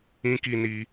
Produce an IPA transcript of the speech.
ĩ˧ k i˧ n i˧

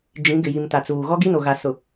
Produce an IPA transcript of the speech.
d͡ʒ ĩ˨˦ ɡ ɪ˨ j i˨ m t a˨ t͡s uː˨ ɣ ɔ˦ ɡ i˦ n o˨ ɣ a˨ s ʊ˨

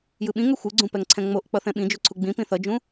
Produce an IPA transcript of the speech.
j ɯ ɓ ĩ ŋ ɛ xʷ ɯ ɡ͡ǀ ũ p ɛ ŋ ǀʰ ɛ̃ ŋ͡m o ʔ k͡p ʌ θ ɛ̃ ɓ ĩ d͡ʒ o ǀʰ u ɡ͡b ĩ p ĩ θ ʌ d͡ʒ ũ

